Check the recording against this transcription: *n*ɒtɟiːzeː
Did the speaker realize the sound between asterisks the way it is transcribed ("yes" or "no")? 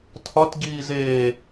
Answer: no